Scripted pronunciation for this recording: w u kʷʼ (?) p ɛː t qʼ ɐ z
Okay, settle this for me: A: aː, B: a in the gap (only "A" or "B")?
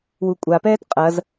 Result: B